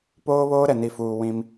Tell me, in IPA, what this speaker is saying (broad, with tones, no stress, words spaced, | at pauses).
poː˦βoː˦ ɾɛ˨ni˨fuː˨ wĩ˦m